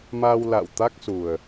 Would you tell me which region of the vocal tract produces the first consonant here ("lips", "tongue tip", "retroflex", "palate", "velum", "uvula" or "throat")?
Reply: lips